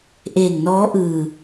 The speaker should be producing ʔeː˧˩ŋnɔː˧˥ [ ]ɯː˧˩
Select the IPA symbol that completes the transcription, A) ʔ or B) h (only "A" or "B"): A